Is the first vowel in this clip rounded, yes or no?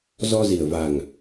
yes